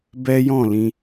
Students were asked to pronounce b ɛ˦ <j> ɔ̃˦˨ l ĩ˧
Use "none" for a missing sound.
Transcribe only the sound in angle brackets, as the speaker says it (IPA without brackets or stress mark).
j